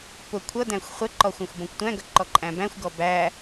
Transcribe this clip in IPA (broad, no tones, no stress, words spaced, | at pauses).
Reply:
pʊ kʷʰʌdæ̃xʷ χʷɛǃɔ xʷæ̃xʷbɔ̃kʷtʷæ̃ɡʌ ǃɔǃʼæ̃bæ̃xʷɡɔ bæ